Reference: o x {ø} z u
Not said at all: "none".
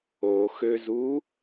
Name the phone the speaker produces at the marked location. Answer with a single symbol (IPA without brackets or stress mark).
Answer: ø